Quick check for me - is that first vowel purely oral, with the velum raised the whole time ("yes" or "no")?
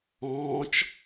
no